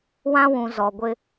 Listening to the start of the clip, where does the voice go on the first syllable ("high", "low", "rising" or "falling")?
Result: high